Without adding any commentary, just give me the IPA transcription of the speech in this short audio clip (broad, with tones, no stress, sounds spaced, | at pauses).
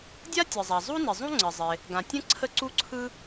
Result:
dʲ a˥ tʲ ɯ˩ zˤ a˩ zˤ u˥ n ɪ˩ zˤ ũ˥ ŋ͡ǀ ɘ˩ zˤ ɪ˩ | ɡ ã˩ tʲ ə̃˥ ǀʰ ə˥ ǀ u˥ ǀʰ ɯ˥